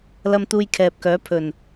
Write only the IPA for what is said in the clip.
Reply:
l ɐ˧ m t̪ uː˧ j kʰ ɛː˨ p̚ k œː˨˥ pʰ ɵ˨˩ n

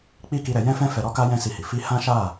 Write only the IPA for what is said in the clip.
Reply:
k͡p i˦ k i˧ ɾ ɛ˧ j ɛ̃˦ f ɛ̃˦ f ɛ˧ ɾ ɔ˦ k a˦ j ɛ̃˦ s i˧ h i˨ f i˧ h ã˦ ʃ a˦˨

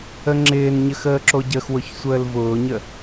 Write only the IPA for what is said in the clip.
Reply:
ə ŋ͡ǁ ɪː n ɲ ə x əː ǁ o ɟ ə x w ʊ ç sʷ əː l v ʊː ɲ ə

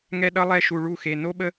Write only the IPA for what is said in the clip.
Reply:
ŋ ɛ˦ ɗ ʌ˦ lˠ ɛ˦ ʃ u˧ ɭ u˦˨ x e˧ n o˦ ɓ ə˦

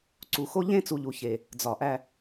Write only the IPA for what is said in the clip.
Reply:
ǀ u˨ x o˦ ʎ ẽ˦ t͡s u˨ ʎ u˨ ç e˨ | d͡z ɒ˨ ʔ æ˦

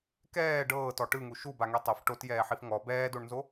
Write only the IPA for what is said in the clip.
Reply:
k ɛː ɖ ɤː t ɔ ʈ ɯ ŋ u ʃ u b a ŋ e tˤ ɛ f ʈ o t j ɛː ħ i f ŋ ɔ b ɛː d o ɳ n z o

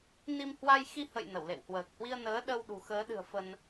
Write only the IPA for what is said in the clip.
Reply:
n i˧ m h w a˧ j x i˧ h ə̰˧˨ j n ə˧˩ w l ḛ˧˨ w h w əː˨˩ k̚ h w i˧ ə̯ n əː˨˦ ɗ ə˧ w ɗ ṳ˨˩ x əː˨˦ ɗ ɨ̤˨˩ ə̯ f ə˧ n

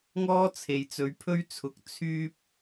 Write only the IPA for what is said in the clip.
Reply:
ŋ ɔː˥ t͡sʰ e˨ j t͡s ɵ˨˧ ɥ pʰ ɵ˥ ɥ t͡sʰ ʊ˨˥ k̚ t͡sʰ yː˥ p̚

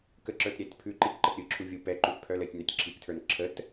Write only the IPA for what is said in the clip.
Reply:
k ə ǁ ə˞ t ɾʲ ɛ t pʰ ʉ ǃ i k ǃ ə t ɾʲ ɯ ǁʰ u vʲ u p ɛ ǃ ʉ t pʰ œ l ə tʲ n œ tʲ ǁʰ i k tʰ ə˞ n ǁʰ ə t

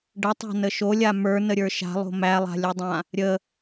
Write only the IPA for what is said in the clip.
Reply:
ɖ ə tˤ a̤ n ə ʃ o lʲ a m ə˞ n ə ɾʲ ə˞ ʃ a̤ lˠ o̤ m æ lˠ a̤ lʲ o dˤ ã | ɾʲ ə

